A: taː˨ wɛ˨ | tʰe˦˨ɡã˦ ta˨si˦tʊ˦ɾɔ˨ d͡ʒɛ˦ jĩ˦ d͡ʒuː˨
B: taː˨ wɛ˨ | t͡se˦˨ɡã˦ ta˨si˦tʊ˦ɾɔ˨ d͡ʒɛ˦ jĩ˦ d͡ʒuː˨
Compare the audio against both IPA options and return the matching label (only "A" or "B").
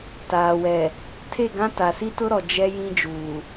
A